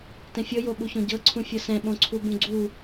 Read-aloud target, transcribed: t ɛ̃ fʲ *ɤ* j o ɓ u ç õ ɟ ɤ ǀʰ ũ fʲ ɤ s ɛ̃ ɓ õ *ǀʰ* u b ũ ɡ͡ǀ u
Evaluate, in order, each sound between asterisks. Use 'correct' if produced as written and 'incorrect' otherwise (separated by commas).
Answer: correct, correct